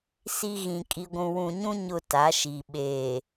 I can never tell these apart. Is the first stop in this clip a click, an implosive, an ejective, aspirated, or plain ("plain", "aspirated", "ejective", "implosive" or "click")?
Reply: ejective